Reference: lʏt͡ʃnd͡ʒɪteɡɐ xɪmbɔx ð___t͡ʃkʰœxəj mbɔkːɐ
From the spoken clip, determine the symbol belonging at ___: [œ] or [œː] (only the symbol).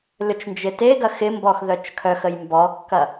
œ